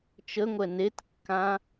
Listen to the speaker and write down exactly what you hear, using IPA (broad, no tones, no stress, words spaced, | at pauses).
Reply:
t͡ʃəŋʷɛ netkːã